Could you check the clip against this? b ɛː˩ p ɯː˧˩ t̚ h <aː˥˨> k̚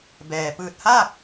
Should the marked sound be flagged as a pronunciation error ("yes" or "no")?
no